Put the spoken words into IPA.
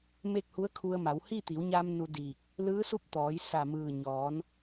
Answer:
me˥˨k̚hu˧˥ə̯kʰu˧ə̯ma˩˧w hi˥˨t̪i˩˧wɲa˧m nu˧diː˧˩k̚ | lɯː˧˥su˥˨p̚t̪ɔː˩˧j sa˧˩mɯː˧˩ ɲɔː˩˧n

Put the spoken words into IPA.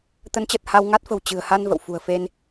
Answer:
t̪ə˨˦nt͡ɕə˨˩t̚ ha˧wŋa˦˥t̚fə̤˨˩w t͡ɕɨ̤˨˩ə̯ha˧n və̰˧˨wfṳ˨˩ə̯fe˧n

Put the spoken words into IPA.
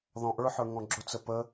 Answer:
ðɔ̃ʔə˞ħə˞ ŋɔ̃ɡ͡ǁʊt͡sə pə

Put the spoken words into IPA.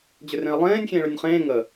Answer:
d͡ʑʏrẽɐ̯lˠẽːnʲ xʲẽːɭʏnʲχẽː ŋə

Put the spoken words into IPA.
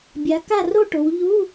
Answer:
bʲa˨˦ka˥˧ro˥˧ʈo˨˦w ʎu˧˥˧

